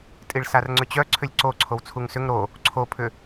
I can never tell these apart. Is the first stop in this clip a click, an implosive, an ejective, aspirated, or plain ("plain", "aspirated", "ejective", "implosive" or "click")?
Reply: ejective